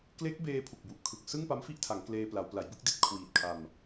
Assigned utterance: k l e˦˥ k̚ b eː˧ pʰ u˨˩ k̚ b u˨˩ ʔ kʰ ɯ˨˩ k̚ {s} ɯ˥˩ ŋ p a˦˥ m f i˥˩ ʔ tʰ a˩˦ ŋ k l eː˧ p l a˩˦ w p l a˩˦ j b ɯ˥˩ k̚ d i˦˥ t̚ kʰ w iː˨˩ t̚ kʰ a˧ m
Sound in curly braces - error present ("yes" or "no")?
no